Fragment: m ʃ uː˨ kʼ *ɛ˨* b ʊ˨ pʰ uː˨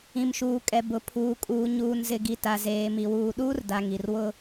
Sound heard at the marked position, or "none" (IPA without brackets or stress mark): ɛ˨